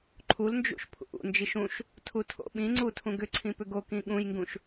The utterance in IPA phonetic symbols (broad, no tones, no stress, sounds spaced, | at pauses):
ǃʰ u l n d͡ʒ ṵ ʃ pʰ ṵ ʔ ṵ n d͡ʒ i ʃ ũ ʃ | tʰ u tʰ o̰ ɓ ĩ ŋ͡ǀ u tʰ ũ ɡ ʏ ǀʰ ĩ p ʏ ɡ o k ĩ ɠ ũ j ŋ ɡ ũ ʃ